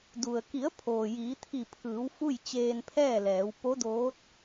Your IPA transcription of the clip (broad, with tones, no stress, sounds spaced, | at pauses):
d u˩ ə̯ k i˩˧ ə̯ pʰ oː˩ j iː˩˧ t̪ʰ i˧˩ pʰ ɯː˩˧ w f u˥˨ j t͡ɕ eː˧ n pʰ ɛː˥˨ l ɛː˩˧ w p o˧˥ d oː˧˥ t̚